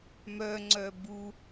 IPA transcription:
m œ ŋ͡ǀ œ b u

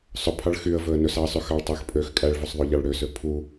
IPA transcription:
sˤ ɵ pʰ ɑ ɭ x y ə̯ v ɵ ə̯ n ɵ s ɑ ə̯ sˤ y x ɑ ɭ tˤ æ x pʼ ø x kʼ æ ɭ v ɵ sˤ ðˤ ø ʎ ɑ ɭ ɽ ø s ø pʰ u

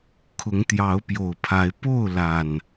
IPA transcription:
kʰ ʊ˨˦ ŋ t̪ j ɑ˨˦ ʊ̯ p j o˨˩ ʊ̯ pʰ a˨˦ ɪ̯ p o˥˨ ʊ̯ l a˨˩ n

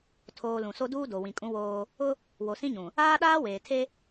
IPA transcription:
tʰ oː˨ l ũ˨ s o˦ d uː˦ d o˨ w ĩ˨ kʼ ũ˦ w oː˦ | ʊ˦ | w o˨ s ĩ˦ ɲ ũ˨ | aː˦ ɗ aː˦ w eː˨ tʰ e˦

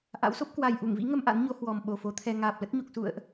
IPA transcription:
ʔ a̰˧˥ w s o˦˥ p̚ k w a˨˩ j ʔ u˧˩ ŋ v ḭ˧˥ ŋ ə˧ m ʔ a̰˧˥ n ɲ o˨˦ h w ɔ˨˩ m ɓ o˨˩ f o˨˦ t̪ʰ ɛ˧ ŋ aː˨˩ p̚ l ə˦˥ t̚ ɲ u˨˩ k̚ s ṵ˧˨ ə̯ ʔ

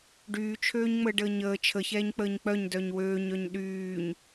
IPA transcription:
ɖ yː t͡ʃʰ øː ɲ ŋ͡m əː ɖ əː ɲ əː t͡ʃʰ ə ç ɛː ɲ k͡p əː ɲ k͡p œ ɲ d œ ɲ w øː ɲ œ ɲ ɗ yː ɲ

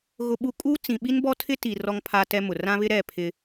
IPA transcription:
ɣ ʊ˨ ɓ u˨ kʼ u˦ t͡s ĩ˨ ɓ i˦ n b ɔ˦ tʰ ɪ˦ t i˨ r ɔ˦ ŋ pʰ a˦ t ɛ˦ m ʊ˨ r ã˦ β ɪ˦ ɾ ɛ˦˨ pʰ ɪ˦

